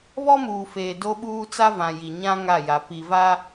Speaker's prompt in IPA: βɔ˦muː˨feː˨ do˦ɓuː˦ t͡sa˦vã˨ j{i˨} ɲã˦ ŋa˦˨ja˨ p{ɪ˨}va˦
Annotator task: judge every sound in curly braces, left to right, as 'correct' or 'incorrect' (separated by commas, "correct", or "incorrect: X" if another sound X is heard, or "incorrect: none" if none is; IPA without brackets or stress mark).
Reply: correct, incorrect: i˨